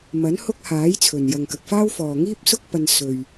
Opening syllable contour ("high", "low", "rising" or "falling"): rising